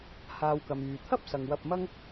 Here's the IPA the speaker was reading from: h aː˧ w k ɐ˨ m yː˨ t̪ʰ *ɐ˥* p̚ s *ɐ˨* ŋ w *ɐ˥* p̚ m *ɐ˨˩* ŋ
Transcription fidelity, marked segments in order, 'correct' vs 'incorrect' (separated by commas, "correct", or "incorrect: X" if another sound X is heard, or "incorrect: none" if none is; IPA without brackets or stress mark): correct, correct, incorrect: ɐ˧, incorrect: ɐ˥